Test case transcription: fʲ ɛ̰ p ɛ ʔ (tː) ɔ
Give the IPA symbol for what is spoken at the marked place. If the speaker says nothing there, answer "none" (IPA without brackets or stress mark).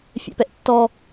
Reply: tː